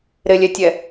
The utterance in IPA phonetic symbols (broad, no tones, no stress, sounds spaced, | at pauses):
ɾ ɪ lʲ ɛ tʲ ɛ